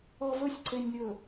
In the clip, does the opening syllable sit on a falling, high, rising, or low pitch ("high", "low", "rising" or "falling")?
low